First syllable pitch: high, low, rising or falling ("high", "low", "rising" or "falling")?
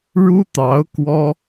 high